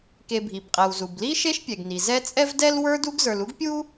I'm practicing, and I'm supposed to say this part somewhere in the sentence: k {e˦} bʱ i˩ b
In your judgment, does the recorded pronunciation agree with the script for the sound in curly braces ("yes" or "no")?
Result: no